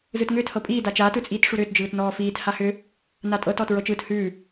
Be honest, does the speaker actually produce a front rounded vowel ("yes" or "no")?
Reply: yes